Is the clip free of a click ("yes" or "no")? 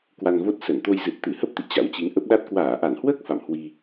yes